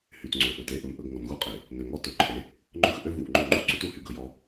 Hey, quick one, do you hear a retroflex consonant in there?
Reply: no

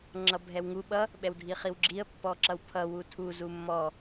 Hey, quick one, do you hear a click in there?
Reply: yes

